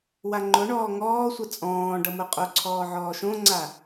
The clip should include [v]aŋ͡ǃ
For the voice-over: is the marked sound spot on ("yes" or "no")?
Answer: no